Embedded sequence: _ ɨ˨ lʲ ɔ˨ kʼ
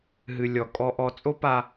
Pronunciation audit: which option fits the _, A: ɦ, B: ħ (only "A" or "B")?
A